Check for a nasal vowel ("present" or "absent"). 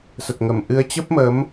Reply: absent